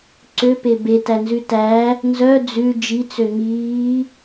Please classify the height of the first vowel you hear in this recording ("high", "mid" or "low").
mid